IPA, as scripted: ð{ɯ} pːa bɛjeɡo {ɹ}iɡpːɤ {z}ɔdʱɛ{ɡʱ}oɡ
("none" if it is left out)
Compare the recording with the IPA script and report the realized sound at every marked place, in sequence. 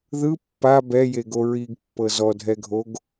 ɯ, ɹ, z, ɡʱ

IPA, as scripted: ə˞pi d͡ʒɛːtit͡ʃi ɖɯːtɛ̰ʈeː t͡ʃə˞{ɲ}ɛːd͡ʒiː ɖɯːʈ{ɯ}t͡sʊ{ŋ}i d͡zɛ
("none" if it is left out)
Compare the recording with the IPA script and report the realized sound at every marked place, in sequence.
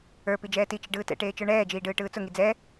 ɳ, ɯː, ŋ

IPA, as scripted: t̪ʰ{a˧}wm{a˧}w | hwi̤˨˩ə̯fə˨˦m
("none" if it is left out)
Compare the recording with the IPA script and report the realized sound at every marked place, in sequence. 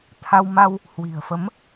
a˧, a˧

